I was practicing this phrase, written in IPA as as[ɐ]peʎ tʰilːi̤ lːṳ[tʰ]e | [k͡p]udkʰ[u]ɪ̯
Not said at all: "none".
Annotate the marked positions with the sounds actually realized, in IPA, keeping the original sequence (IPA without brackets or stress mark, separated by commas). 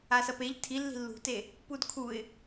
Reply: ɐ, t, p, u